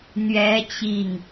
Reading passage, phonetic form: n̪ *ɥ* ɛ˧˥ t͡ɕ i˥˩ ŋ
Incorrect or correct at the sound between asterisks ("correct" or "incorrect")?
correct